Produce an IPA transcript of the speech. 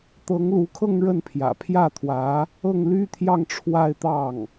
t̪ɤ˧˥ŋlu˧˥kʰɤ˥˧ŋ ɻə˥˩npʰjä̰˨˩ pʰjä˥˩t̪ʰwä˧˥ | ɤ˥˩ŋly˥t̪ʰjɑ˥˧ŋ ʈ͡ʂʰwa˥˧ɪ̯t̪ɑ˥˩ŋ

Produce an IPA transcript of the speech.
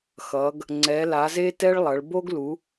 xʌ˨˦ɡ | ŋ͡ǀɛ˨˦la˨˦ze˥tɛ˥ɭ lˠʌ˨˦ɭ bo˥ɡlu˨˦

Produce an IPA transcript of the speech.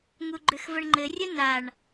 ŋuɡ͡ǃʏxvəɳŋ͡ǃɘ rʲənaɳ

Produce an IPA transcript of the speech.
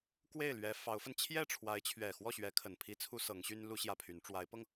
kwe˥˩ɪ̯lɥɛ˧˥ fɑ˧˥ʊ̯fə˧n t͡ɕʰjɛ˥˩ʈ͡ʂʰwa˧˥ɪ̯t͡ɕʰɥɛ˨˩ xwɔ˥˩ɕɥɛ˧˥kʰə˨˩n pʰi˥t͡sʰu˥sɤ˧˥ŋɕy˥n lu˥ɕjä˥˩pʰy˧˥n ʈ͡ʂwa˧˥ɪ̯pɤ˧ŋ

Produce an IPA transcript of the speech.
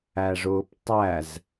æʐʊːptˤæz

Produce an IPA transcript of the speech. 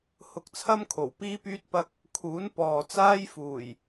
hʊ˧k̚t͡sʰɐ˥m kʰo˨˩w piː˥pyː˥t̚ pɐ˧k̚ | kʰuː˨˥n pɔː˨ t͡saː˥j fuː˨˩j

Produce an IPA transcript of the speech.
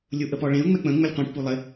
lʲuʔəpɔɭẽʊ̯ ŋ͡mɛk͡pə̃ ŋ͡məlʲqʷẽʈ pulˠɪ

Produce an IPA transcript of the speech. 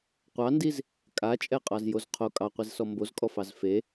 qʷɑndiz | kʼat͡ʃʼɛqʼɑzjoz qʰo kʼɑqʷizsɔ mbozkʼɔfɑz fe

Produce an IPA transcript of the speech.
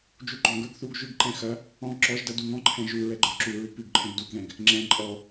d͡ʒuɡ͡ǃɔ̃ɡə˞ɡ θuɡ ʒʉɡǃɛ̃ xɐ | ɔ̃ ǁɔʒdɐ duŋɔ̃ǃʰɛ̃ ʒu ɹɛɡ͡ǃə˞ǁuɹʉ pʉɡǃʰɛ̃ɡ duɡðɛ̃ɡ | ŋ͡ǁɛ̃ ǃʼɔ

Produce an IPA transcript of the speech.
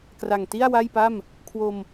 kra˨˩ŋti˥˩a̯ wa˥˩jpa˥˩m | kʰwo˧m

